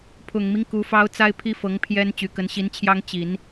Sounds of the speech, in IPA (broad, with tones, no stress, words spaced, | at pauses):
pʰʊ˨˩ŋmi˦ŋ ku˧˥fɑ˥ʊ̯ t͡sa˥ɪ̯pʰi˥fɤ˧˥ŋ pʰjɛ˥n t͡ɕy˨˩kə˧˥nɕi˧˥nt͡ɕʰjɑ˥ŋ t͡ɕi˨˩˦n